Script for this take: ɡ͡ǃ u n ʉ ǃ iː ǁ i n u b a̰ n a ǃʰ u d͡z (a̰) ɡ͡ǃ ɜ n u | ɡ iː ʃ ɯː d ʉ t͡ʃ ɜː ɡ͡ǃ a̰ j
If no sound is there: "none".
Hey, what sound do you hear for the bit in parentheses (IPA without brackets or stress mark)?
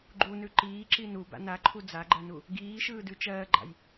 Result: a